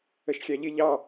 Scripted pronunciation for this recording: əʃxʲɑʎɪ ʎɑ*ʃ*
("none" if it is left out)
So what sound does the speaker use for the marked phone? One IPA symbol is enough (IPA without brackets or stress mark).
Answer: none